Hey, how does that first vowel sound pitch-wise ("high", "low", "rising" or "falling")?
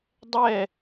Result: falling